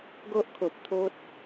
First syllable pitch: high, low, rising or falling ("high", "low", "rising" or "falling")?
high